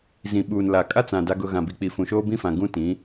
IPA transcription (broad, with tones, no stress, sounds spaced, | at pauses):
z ĩ˨ ɓ uː˨ n l a˨ kʼ a˦ t͡s ã˨ d a˦ ɡ ʊ˦ ɣ ã˨ b i˨ k͡p i˨ f ũ˨ ʃ oː˦ b ĩ˦ f ã˨ ɡ ũ˦ t ĩ˨˦